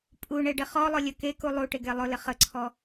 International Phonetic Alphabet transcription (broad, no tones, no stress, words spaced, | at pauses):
pʼuɳeɖɪ χɔlˠʊlʲə keku lˠuʈɪɡe lˠʊlɪ χəǀʰɔ